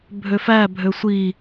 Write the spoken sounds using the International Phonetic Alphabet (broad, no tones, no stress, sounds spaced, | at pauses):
bʱ ø f æ bʱ ø sʷ i